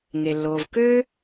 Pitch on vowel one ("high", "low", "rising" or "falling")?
low